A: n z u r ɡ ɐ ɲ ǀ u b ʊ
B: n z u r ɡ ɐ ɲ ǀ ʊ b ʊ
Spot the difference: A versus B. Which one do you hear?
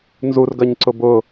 B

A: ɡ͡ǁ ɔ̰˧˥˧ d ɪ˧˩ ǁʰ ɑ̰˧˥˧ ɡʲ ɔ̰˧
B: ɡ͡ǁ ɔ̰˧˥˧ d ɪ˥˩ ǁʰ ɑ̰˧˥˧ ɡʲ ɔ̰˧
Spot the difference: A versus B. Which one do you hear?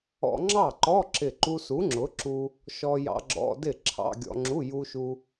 B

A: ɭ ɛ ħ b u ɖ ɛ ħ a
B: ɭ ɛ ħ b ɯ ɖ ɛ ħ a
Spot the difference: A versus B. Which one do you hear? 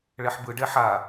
B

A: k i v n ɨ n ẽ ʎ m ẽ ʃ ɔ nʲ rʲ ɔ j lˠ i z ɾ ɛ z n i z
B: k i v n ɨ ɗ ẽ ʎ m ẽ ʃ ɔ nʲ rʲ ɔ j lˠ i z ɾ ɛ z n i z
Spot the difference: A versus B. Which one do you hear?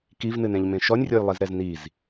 A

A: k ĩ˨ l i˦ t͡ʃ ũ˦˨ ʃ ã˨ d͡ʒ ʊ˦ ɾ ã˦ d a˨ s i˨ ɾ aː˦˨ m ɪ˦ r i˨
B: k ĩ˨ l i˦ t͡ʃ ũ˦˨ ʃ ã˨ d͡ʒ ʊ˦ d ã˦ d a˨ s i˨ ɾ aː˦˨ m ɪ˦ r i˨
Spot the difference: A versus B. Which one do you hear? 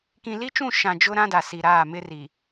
A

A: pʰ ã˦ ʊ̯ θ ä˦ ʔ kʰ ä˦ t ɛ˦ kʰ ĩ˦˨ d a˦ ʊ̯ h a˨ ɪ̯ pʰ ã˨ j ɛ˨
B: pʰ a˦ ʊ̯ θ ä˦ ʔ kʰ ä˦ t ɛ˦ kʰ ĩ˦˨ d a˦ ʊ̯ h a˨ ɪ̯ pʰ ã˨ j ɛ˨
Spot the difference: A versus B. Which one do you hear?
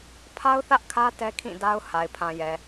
B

